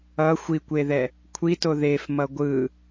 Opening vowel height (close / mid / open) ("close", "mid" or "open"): mid